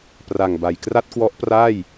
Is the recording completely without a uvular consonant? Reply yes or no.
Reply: yes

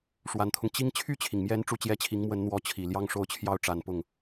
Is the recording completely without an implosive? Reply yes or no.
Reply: yes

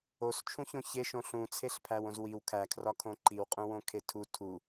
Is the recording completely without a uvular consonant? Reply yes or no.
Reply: no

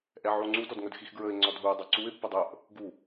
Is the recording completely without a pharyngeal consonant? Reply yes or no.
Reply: no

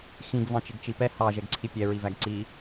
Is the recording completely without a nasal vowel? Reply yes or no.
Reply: no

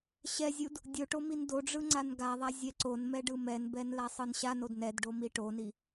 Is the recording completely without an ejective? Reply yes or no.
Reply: yes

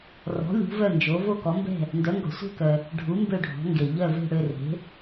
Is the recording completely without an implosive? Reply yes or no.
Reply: yes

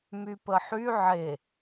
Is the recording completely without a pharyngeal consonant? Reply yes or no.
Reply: no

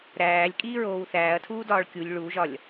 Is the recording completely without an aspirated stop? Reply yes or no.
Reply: no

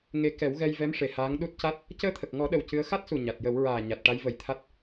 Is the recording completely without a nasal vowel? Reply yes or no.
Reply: yes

